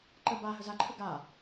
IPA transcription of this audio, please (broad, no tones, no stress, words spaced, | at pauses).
ǃə ba ɦəzaǃʰə ɡa